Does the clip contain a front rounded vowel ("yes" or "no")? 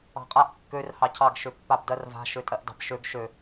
yes